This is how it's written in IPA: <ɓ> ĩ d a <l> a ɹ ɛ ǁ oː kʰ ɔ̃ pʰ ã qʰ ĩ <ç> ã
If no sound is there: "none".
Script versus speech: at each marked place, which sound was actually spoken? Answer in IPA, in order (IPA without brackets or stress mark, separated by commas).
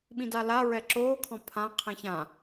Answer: ɓ, l, ç